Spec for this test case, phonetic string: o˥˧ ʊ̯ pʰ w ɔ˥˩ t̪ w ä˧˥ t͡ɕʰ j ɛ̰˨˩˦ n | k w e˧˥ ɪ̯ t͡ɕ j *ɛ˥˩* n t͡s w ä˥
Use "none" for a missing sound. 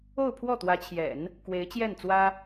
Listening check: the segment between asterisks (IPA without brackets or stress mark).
ɛ˥˩